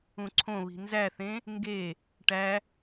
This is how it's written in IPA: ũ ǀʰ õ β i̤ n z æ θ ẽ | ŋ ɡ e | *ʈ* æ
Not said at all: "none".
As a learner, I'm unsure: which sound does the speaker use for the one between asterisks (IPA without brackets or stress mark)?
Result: ʈ